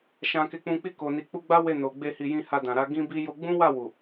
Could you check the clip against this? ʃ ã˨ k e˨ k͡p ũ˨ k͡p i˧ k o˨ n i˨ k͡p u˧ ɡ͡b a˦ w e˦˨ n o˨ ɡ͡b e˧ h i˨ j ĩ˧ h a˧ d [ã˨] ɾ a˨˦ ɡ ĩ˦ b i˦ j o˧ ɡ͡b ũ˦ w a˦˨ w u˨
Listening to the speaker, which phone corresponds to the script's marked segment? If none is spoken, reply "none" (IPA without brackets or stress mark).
ã˨